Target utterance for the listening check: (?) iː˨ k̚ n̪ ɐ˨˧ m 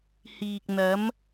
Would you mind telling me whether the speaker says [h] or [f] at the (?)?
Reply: h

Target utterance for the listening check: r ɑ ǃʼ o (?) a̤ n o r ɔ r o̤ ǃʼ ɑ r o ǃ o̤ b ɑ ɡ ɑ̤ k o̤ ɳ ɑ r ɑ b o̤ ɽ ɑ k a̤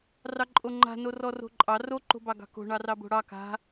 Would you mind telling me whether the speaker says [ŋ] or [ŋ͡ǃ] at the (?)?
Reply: ŋ͡ǃ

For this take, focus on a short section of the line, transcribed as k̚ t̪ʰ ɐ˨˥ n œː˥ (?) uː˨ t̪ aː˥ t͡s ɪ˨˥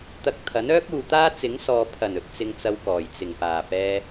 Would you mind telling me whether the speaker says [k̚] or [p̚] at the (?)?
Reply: k̚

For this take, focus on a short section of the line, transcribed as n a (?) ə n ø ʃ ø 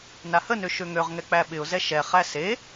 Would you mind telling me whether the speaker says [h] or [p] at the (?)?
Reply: h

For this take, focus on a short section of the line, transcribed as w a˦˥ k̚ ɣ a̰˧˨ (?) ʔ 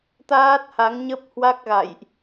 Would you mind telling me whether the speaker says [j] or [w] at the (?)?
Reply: j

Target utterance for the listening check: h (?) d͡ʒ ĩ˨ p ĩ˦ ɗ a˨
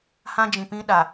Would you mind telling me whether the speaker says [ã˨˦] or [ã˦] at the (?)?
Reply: ã˦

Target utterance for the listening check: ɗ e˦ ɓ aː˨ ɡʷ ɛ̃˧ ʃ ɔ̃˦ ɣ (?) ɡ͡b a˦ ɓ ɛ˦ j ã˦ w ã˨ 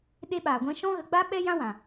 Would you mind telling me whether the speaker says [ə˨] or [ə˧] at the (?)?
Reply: ə˧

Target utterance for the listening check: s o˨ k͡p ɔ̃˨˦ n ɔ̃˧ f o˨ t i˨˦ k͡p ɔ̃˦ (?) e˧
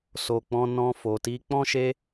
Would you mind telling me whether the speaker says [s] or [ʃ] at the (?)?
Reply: ʃ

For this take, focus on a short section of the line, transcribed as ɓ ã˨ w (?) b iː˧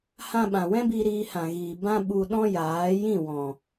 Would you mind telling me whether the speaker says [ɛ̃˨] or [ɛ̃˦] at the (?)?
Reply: ɛ̃˦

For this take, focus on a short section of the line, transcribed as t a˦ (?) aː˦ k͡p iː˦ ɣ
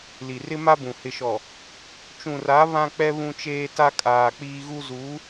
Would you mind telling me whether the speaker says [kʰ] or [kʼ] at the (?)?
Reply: kʼ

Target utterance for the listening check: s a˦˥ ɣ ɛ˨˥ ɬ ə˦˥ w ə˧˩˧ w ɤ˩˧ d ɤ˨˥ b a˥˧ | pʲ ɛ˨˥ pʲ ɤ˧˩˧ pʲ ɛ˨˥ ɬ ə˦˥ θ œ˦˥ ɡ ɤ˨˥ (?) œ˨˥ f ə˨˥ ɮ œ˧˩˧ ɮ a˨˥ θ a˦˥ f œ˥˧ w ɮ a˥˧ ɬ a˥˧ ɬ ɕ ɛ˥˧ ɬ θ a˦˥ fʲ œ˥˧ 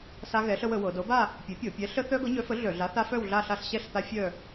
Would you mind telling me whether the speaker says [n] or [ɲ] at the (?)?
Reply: ɲ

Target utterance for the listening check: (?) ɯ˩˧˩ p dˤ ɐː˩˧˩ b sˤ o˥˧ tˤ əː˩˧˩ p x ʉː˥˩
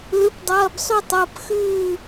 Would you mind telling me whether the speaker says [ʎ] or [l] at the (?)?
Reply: l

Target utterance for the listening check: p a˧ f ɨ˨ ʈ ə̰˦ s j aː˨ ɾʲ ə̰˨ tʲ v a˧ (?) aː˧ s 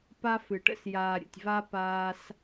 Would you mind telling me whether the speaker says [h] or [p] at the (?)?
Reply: p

